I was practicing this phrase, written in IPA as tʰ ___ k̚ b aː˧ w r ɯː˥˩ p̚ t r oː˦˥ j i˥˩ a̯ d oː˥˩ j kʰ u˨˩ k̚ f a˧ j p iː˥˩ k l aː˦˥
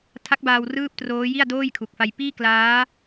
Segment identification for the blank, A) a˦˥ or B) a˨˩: A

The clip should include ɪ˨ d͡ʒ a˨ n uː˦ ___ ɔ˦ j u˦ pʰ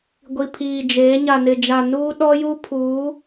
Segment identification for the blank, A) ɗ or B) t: A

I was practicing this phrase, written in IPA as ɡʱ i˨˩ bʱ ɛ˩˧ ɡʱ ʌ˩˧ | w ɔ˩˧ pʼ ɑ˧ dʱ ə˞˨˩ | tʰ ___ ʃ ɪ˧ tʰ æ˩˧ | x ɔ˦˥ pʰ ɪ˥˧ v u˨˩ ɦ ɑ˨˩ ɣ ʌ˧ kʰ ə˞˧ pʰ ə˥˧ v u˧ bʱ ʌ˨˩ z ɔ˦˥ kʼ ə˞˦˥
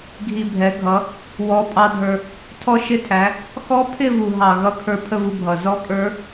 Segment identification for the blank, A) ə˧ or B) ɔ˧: B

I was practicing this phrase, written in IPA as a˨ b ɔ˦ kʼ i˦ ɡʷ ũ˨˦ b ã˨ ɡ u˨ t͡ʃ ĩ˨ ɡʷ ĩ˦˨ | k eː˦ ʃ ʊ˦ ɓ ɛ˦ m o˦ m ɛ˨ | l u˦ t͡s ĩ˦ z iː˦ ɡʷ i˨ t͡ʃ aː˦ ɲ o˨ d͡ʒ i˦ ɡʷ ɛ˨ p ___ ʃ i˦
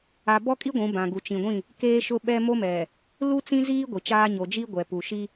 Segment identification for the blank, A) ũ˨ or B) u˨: B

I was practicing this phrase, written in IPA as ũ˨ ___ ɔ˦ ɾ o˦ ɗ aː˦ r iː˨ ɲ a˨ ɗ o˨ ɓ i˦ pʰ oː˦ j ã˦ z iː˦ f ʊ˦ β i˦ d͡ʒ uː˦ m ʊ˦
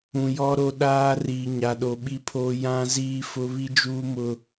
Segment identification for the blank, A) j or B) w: A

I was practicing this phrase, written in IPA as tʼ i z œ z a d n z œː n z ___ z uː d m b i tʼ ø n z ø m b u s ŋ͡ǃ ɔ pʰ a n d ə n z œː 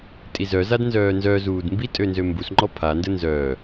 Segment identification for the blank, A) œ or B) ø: A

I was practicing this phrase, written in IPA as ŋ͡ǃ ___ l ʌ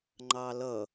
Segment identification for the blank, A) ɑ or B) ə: A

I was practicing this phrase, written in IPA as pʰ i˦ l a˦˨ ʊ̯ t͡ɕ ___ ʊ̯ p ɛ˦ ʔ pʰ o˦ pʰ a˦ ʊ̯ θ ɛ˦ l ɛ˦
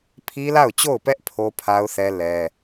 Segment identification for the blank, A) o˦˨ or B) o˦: A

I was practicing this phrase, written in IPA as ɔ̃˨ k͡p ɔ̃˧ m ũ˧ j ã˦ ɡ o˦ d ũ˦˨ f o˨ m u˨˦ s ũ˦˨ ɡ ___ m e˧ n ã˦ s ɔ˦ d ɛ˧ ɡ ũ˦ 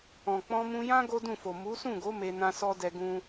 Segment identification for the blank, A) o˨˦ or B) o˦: A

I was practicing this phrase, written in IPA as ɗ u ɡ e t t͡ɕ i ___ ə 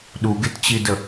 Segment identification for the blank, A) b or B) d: B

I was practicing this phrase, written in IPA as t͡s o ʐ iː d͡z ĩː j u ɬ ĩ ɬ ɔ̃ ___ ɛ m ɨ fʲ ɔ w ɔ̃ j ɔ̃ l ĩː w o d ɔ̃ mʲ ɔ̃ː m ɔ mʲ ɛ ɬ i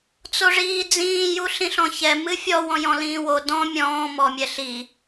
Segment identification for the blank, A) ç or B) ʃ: A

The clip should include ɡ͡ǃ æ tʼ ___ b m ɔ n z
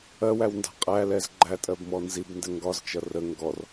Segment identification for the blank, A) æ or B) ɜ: B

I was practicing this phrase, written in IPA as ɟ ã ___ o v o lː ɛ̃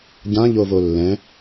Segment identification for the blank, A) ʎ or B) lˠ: A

